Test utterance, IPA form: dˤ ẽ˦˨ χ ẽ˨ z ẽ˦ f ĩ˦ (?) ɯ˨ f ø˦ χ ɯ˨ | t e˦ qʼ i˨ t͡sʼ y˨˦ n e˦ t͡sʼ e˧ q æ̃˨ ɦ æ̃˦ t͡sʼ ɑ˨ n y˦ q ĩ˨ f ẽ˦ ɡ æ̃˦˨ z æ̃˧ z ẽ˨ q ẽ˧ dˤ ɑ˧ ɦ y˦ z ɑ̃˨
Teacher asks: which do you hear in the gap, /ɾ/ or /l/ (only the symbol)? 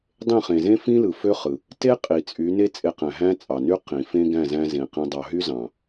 l